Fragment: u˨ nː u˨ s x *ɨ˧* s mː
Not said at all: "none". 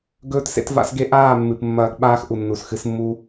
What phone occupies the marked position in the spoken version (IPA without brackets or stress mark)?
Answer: ɨ˧